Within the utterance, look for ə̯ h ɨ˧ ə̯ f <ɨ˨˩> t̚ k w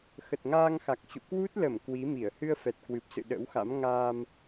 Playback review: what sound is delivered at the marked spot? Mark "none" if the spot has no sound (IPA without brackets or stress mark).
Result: ɛ˨˩